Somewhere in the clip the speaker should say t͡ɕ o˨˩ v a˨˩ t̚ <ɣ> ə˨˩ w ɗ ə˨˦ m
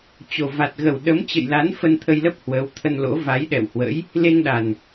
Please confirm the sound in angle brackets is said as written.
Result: yes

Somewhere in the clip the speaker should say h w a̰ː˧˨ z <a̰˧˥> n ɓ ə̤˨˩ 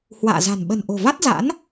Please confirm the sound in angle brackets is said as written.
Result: no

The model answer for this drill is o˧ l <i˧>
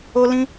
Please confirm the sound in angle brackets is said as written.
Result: no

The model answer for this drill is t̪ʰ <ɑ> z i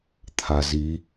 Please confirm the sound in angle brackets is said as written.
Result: no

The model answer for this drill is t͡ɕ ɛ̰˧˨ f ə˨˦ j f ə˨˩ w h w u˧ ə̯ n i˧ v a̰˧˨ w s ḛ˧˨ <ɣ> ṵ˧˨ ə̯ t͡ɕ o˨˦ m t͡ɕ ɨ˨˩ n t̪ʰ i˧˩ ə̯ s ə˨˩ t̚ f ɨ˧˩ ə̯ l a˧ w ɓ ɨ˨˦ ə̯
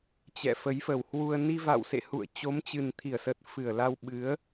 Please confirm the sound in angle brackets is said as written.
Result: no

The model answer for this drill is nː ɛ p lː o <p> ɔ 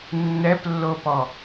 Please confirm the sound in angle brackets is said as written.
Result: yes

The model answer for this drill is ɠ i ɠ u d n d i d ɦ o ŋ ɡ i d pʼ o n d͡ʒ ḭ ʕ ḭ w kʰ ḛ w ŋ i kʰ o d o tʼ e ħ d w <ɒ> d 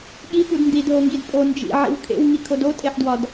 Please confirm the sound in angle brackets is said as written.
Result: yes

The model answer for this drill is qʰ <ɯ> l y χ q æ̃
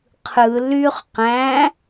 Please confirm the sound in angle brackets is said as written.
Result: yes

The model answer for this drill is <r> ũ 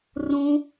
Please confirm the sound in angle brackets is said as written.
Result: yes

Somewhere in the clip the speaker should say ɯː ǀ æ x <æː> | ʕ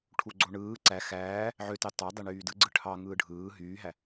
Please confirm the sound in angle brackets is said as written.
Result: yes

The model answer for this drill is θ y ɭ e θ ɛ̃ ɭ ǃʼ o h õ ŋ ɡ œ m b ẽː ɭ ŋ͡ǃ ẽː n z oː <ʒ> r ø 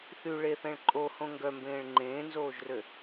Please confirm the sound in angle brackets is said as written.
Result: yes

